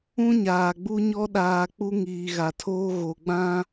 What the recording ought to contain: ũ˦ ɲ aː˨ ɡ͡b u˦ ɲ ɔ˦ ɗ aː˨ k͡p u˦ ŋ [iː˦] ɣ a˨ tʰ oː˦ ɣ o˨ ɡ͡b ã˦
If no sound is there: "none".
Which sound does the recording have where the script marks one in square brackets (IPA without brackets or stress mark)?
iː˨